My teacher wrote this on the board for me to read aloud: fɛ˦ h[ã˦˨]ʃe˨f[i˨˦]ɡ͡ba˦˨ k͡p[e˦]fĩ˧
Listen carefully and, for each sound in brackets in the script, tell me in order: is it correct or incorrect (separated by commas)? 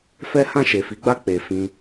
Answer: correct, correct, incorrect